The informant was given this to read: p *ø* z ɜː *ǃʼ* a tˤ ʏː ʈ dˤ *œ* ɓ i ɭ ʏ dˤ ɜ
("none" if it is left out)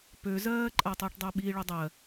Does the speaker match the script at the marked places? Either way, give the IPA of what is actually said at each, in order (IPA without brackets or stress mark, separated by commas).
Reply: ø, ǃʼ, œ